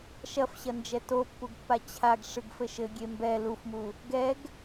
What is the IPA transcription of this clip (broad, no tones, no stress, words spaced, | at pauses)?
ʃɐfɕɐnd͡ʒɛ topːuɡpːa t͡ɕʰaɡ ʂɨɡfɘʃɘ ɡʲembɛ lufmu | ɡɛɡ